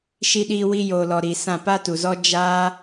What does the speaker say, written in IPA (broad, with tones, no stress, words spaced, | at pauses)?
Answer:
ʃi˧ɗiː˧ wi˧joː˨lɔ˨ ɾi˨sã˦˨ pa˦tu˨zɔ˦ d͡ʒaː˦